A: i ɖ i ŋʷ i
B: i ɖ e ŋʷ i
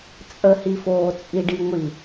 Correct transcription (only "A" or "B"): A